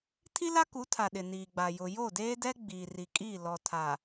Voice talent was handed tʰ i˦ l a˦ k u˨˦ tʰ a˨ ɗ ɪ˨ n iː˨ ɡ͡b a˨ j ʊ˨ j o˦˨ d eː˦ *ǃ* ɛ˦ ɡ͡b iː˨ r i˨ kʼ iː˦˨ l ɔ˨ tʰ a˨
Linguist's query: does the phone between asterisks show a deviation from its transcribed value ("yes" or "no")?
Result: yes